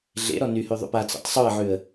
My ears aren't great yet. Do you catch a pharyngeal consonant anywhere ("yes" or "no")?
yes